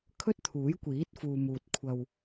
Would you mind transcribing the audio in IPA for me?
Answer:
kʰ ɵ˥ t̚ t̪ʰ uː˨˥ j kʷ iː˨˥ t̚ f uː˨ m uː˨ t̚ kʷʰ ɐ˧ w

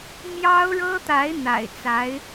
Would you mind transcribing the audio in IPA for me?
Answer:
m j ɑ˥ ʊ̯ ɻ ɤ˥ t̪ a˧˥ ɪ̯ n̪ a̰˨˩ ɪ̯ t͡s a˧˥ ɪ̯

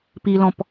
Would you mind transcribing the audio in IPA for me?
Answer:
p i l ɔ̃ p

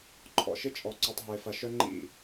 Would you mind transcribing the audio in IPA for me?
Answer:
ǃʰ ɔ̰˨ ʃ ɪ˦ t͡ʃʼ ɔ˨ ǀ y˨ tˤ ɦ ɪ˨ f ɐ˨ ʃ œ˦ ŋ͡ǃ ḭ˦˨

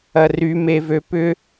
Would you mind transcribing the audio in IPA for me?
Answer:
ɐ r y m e v ø p ʏ

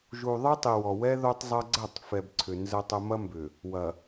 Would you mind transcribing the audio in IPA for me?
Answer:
ʒ u˨ ðˤ ɯ˦ tˤ i˨ w ɔ˨ w ɛ˦ ð o˦ tˤ zˤ ɐ˦ ɡ͡ǀ ɐ˦˨ tˤ f ɛ˨ b ǀʰ ʏ˨ n z ə˦ tˤ ə˦ m ɐ˦ m b ʏ˨ | w ɐ˨

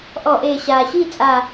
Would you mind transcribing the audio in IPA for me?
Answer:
ʔ ɔ˧˩˧ ʔ eː˨˩ ɕ aː˨˩ ɕ iː˥˨ t͡sʼ a˨˩

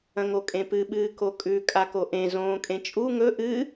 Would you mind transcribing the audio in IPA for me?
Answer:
ɐ̃ ŋ o kʼ ẽ p ɨ ɓ ɨː k o kʼ ʉ kʼ a k o ʔ ẽ z õː kʼ ẽ t͡ʃʼ u ŋ ɵ ʔ ɨ

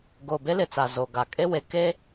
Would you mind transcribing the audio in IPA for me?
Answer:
ɡ oː˨ b e˦ l ɪ˨ t͡s a˨ z o˨ ɡ a˨ kʼ e˦ w e˨ k e˦

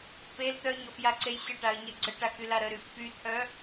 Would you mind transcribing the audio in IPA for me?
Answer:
p e l t̪ œ ɲ ɔ f j a ǀ e j ɕ ə ʈ a ə̯ ɲ ɛ ɡ͡ǀ ə ʈ a k y l a ɾ ə ɾ y f p y t̪ʰ œ

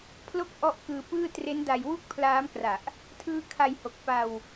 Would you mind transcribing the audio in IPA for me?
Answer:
pʰ l o˥˩ k̚ ʔ ɔ˦˥ ʔ k ɯː˧ p ɯː˥˩ t r e˦˥ n d a˧ j w u˥˩ k̚ pʰ l aː˦˥ m k r a˨˩ ʔ | tʰ ɯː˦˥ kʰ a˧ j h o˨˩ k̚ p a˧ w

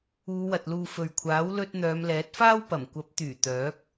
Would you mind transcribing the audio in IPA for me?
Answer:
uː˨˧ w ɐ˨ t̚ l uː˨ f ɵ˨ ɥ kʷʰ aː˨˥ w l ɵ˧ t̚ n̪ œː˨˧ m l ɛː˨˥ t̚ f aː˥ w p ɐ˨˩ m kʷ ɐ˨˥ p̚ t̪ yː˨˩ t̪ œː˨˥ k̚

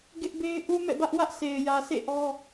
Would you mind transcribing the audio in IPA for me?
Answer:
ɡ ɪ˦ ʔ b e˦ ɪ̯ ʔ u˦ m ɛ̰˦˨ b ä˦ ʔ w ä˦ ʔ s e˨ ɪ̯ j ä˨ s ḛ˦˨ ʔ ɔ˦

